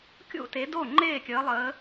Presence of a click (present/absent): present